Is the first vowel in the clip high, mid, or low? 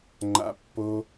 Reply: low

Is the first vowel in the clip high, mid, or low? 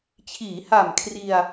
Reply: high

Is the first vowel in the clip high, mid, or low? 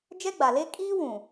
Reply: mid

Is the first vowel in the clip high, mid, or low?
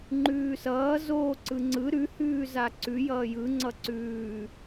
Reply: high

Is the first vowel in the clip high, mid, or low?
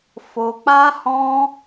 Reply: mid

